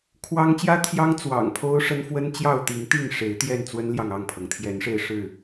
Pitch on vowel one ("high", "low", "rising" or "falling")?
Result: high